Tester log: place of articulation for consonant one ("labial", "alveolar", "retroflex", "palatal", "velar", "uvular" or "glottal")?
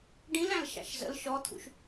retroflex